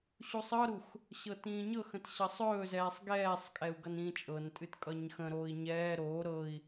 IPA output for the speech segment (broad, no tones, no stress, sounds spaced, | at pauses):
ɕ u sˤ ɤ ɾ u x | ɕ ɤ t ĩː ɲ ɤ x ə̃ t ɕ ʌ sˤ ɵː z ɛː sˤ ɡ ɛː sˤ kʼ ɛ u̯ ɡ ʌ n ĩː t͡ʃʼ ɤ n tʼ ɨ t kʼ ʌ ɲ x ə̃ ɾ oː i̯ ɲ ɛː ɾ oː ɾ ɤ i̯